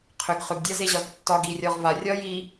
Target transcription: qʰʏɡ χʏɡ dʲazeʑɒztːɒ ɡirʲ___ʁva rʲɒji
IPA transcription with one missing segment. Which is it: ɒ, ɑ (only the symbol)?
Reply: ɒ